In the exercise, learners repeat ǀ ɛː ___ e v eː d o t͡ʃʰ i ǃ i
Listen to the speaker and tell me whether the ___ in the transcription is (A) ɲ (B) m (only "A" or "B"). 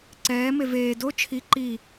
B